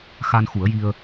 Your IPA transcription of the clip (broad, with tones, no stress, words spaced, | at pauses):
xa˧nxu˨˩˦ə̯ji˧ə̯